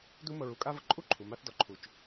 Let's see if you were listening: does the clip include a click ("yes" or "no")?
yes